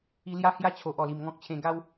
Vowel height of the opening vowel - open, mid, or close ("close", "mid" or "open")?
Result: close